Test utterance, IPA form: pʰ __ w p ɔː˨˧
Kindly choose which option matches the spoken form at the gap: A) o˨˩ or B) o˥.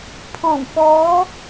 A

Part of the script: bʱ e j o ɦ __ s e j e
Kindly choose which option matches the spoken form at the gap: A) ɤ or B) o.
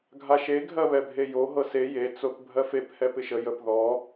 A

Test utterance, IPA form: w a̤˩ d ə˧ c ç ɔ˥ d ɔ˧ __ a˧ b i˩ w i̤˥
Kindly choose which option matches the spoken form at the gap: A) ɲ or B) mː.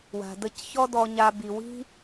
A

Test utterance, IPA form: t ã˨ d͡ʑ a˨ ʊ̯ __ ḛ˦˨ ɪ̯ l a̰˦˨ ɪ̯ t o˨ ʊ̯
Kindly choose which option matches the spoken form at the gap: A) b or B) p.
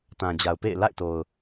B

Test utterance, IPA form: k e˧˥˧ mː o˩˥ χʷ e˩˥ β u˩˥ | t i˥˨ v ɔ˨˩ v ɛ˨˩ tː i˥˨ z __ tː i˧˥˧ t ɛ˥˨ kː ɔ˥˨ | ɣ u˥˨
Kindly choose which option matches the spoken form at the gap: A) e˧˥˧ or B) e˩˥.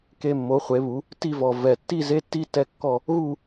A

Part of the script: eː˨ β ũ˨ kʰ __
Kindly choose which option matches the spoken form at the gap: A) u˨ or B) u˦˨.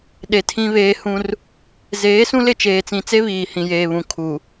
A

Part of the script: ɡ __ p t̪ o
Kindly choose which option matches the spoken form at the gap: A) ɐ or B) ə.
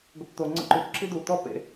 B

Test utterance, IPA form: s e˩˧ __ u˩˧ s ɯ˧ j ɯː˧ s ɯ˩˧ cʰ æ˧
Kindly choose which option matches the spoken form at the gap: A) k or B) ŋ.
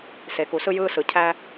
A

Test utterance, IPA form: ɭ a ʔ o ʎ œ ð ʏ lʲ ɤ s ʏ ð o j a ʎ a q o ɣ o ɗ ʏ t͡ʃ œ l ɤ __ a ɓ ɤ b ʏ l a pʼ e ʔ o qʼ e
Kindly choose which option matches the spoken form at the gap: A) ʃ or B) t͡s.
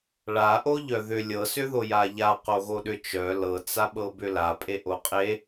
B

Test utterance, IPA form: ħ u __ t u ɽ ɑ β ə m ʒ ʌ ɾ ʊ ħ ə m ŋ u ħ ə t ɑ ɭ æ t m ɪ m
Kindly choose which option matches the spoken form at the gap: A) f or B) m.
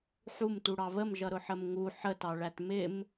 B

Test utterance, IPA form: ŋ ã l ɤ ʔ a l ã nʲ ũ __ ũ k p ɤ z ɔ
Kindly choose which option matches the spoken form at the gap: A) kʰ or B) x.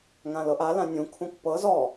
A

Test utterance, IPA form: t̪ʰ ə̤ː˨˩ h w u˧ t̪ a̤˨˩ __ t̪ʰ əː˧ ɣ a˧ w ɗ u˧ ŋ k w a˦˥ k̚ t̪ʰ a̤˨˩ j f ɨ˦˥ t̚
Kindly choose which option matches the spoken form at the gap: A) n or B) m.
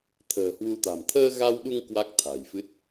B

